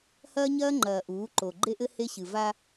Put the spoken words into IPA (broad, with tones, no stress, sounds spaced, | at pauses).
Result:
h ɐː˦ ɲ ɐː˦ ŋ͡ǃ ɐː˨ ʔ uː˨˦ ǃ o˨ ɡ͡ǃ e˦ ʔ ɘ˦ h e˦ ɕ ɨ˨ v a˦